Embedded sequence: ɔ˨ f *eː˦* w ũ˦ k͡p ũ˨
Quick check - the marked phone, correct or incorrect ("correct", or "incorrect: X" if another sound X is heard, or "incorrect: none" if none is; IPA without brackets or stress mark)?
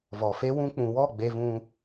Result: incorrect: e˦